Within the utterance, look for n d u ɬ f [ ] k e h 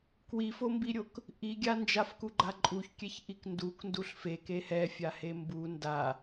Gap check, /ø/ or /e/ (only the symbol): e